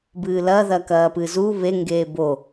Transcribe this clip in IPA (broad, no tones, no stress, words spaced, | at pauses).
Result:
bɨːlɐ ðɐkɐːpɨzu βe ŋɡeːbo